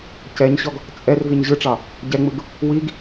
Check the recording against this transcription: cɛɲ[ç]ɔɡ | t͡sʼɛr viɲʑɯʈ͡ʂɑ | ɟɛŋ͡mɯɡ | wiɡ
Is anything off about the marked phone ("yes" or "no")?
yes